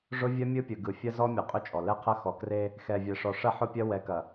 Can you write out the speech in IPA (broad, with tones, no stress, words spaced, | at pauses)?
ʐʊ˦vʲɐ˦ mʲɯ˦pʲɯ˨ɡɯ˨ fʲɐ˦zɔ˦mʲɐ˨ qʼʏ˦t͡ʃʼɔ˨ lɛ˦qʰɐ˦ xɔ˨kre˦ | xɛ˨vʲɛ˨ʂɔ˨ʂɐ˦ ħʊ˦pʲɐ˦ wɛ˨˦kɐ˨